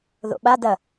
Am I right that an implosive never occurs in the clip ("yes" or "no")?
no